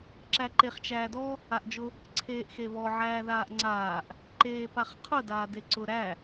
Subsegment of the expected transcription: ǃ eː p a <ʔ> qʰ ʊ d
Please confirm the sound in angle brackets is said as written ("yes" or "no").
no